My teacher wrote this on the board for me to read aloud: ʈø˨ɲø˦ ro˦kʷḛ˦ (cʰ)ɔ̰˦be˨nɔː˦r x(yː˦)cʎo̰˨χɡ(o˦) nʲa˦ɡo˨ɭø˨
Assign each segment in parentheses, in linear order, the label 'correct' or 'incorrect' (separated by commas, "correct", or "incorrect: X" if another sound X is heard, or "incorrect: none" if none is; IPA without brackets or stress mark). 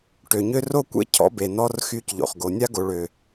correct, correct, incorrect: o˨